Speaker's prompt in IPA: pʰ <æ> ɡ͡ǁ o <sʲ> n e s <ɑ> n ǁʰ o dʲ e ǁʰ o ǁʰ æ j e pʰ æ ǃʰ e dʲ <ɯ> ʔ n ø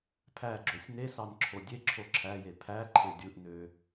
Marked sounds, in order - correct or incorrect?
correct, correct, correct, correct

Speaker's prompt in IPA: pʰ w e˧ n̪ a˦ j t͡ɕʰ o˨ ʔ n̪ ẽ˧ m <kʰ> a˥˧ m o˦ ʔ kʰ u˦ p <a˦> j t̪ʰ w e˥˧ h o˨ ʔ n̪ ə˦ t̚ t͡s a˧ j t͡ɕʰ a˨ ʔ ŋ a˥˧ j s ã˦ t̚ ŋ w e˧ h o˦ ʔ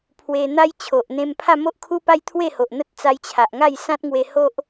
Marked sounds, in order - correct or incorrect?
incorrect: pʰ, correct

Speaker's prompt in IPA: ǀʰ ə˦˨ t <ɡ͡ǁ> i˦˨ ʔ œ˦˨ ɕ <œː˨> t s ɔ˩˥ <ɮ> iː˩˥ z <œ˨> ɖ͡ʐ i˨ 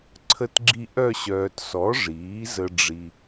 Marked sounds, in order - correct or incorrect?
correct, correct, incorrect: ʐ, incorrect: ə˨

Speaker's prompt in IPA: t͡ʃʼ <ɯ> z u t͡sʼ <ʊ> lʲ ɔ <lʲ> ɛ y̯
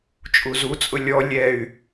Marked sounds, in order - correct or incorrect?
incorrect: u, correct, correct

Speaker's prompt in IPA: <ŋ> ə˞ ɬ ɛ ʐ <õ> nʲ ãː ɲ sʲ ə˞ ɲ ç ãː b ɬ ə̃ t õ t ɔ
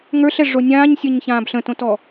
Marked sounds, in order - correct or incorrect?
correct, incorrect: o

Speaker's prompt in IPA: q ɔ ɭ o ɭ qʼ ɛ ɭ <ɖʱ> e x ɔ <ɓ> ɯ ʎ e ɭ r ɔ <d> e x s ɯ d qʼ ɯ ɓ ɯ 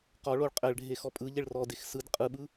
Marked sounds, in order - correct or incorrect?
correct, incorrect: pʼ, correct

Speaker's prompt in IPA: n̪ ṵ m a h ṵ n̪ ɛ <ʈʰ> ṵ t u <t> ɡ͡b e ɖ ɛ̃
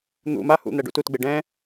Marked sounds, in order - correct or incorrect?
incorrect: ɖ, correct

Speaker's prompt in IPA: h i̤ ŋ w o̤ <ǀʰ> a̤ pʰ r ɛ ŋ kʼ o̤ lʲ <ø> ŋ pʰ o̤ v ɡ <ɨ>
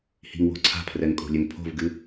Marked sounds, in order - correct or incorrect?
correct, correct, correct

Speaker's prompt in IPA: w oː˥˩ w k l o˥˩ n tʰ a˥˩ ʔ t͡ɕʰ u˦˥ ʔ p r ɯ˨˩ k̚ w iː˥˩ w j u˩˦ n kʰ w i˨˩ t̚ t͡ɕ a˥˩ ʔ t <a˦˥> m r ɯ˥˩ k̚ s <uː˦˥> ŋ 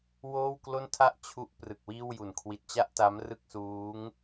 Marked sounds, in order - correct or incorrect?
correct, correct

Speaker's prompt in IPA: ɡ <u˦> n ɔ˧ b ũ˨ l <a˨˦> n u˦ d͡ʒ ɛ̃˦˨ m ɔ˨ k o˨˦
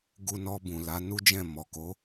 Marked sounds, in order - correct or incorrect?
incorrect: u˧, correct

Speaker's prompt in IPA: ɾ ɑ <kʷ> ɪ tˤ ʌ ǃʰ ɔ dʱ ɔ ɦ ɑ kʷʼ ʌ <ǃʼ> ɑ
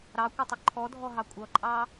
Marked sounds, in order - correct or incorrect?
correct, correct

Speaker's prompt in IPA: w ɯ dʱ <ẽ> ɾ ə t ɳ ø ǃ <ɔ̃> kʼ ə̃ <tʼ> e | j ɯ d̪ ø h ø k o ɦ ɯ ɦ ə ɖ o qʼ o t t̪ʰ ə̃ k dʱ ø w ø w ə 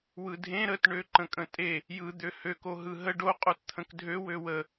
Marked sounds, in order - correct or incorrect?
correct, incorrect: ə̃, correct

